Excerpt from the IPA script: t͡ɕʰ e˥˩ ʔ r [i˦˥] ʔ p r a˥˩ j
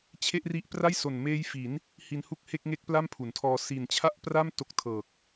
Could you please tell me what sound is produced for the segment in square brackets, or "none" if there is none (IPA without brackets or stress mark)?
i˦˥